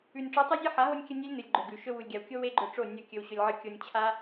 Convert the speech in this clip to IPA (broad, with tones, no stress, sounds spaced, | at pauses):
ʉ˨ nʲ ʈ͡ʂ u˨˦ tˤ ʉ˦ zʲ ɨ˦ ħ a˨˦ ɦ o˧ nʲ kʲ ɐ˧ nʲ e˦ lʲ n ɨ˨ lʲ ɡ͡ǃ ɵ˨ ɡ ʉ˨ ʃ ɵ˧ w u˨ lʲ ɡʲ a˨ w kʲ o˦ w e˦ ɡ͡ǃ ɵ˧ ʈ͡ʂ o˦˨ nʲ ɐ˧ kʲ ɵ˧ w ɕ ɵ˧ lʲ ʕ ɨ˧ kʲ o˧ nʲ t͡ɕʰ a˦